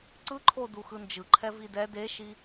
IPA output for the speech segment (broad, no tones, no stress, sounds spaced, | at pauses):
ǀ ɯ ǃʰ o d u x ɯ n d͡ʒ ɯ ǃʰ ɛ v i d ɛ d e ʃ i